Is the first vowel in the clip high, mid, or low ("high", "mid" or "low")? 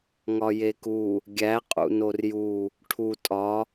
low